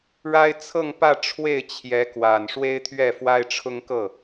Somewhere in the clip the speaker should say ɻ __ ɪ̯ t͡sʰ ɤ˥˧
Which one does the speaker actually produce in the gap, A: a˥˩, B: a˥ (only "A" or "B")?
B